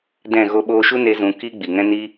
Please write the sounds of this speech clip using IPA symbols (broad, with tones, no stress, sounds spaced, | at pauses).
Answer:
d ɛ̃˦˨ ɣ o˧ ɓ oː˧ ʃ u˦ n e˧ z ũ˨ k i˦ ɡ͡b i˨ ŋ ɛ̃˦ n i˦